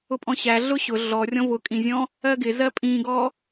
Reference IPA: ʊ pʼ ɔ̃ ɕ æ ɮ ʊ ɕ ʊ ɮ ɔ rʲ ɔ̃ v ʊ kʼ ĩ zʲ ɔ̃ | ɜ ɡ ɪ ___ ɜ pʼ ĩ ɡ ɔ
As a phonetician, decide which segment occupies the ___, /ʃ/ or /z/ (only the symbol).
z